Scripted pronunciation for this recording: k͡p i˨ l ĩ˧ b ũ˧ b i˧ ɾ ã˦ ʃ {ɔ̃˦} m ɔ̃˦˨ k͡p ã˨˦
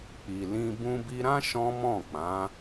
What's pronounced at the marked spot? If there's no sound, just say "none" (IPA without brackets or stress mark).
ɔ̃˦